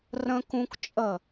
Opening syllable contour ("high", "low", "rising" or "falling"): high